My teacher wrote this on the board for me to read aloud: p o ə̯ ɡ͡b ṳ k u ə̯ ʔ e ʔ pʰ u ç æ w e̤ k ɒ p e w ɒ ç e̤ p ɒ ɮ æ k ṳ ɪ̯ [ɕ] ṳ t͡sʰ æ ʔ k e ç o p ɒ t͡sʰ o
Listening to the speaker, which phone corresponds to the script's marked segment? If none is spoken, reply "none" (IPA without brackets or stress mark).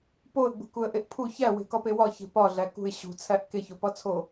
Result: ɕ